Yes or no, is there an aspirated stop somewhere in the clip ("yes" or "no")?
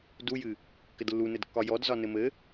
no